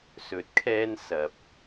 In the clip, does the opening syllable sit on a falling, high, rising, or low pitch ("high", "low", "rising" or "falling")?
rising